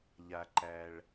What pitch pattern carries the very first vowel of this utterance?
low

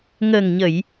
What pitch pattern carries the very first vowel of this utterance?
low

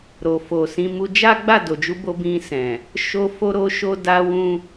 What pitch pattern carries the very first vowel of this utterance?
low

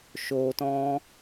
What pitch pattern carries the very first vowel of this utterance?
low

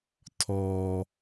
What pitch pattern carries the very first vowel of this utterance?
low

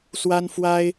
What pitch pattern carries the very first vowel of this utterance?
high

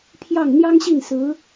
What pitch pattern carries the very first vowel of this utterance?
falling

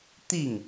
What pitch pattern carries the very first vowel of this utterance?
falling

